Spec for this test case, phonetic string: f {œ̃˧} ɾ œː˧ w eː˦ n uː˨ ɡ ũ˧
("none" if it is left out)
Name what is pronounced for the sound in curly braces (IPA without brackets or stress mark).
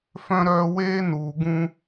œ̃˧